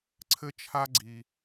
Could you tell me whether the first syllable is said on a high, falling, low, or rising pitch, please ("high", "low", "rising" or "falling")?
high